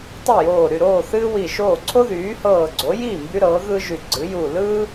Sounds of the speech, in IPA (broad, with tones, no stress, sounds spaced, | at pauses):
tˤ ɯ˥˩ j oː˧˩ ɾ y˧˩ ɾ oː˥˩ θ ɨː˥ w i˧˩ ʃ oː˥˩ ǀʰ o˥ ð yː˩˥ h ɤː˧˩ ɡ͡ǀ o˩˥ j iː˥˩ m b y˥ ɾ ɤː˩˥ ɣ ɯ˥ ʒ y˧˩ ɡ͡ǀ ɨ˩˥ j u˧˩ l ɯ˥